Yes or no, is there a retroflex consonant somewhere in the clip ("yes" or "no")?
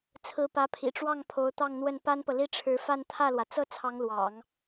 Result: yes